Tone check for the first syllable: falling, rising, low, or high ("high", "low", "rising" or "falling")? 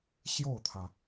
falling